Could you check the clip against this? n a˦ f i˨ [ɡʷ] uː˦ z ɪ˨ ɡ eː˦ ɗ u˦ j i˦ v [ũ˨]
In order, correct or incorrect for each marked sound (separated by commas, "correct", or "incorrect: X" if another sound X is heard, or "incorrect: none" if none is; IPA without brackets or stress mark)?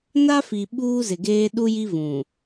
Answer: incorrect: ɓ, correct